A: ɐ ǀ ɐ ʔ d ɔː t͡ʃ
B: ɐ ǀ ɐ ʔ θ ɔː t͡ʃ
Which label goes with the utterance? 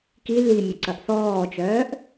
B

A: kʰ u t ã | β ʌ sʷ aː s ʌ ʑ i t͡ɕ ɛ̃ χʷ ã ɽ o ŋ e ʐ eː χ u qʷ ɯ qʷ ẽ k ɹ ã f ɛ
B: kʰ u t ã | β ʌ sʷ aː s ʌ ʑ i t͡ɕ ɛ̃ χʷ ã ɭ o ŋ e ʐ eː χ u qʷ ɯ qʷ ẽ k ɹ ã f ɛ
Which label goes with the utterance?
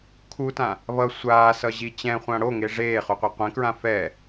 A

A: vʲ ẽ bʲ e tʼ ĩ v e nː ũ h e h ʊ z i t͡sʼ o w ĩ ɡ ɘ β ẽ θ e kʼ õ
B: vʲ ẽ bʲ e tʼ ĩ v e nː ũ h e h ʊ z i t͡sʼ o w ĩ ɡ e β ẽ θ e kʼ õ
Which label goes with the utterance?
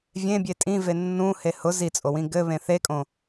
A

